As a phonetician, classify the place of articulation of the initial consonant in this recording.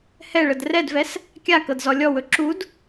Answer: glottal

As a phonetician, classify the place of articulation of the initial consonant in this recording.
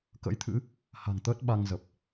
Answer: velar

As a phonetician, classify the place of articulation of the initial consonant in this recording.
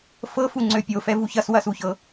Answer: labial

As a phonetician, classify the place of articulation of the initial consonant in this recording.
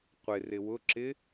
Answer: uvular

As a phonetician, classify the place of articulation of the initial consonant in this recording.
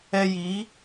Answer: palatal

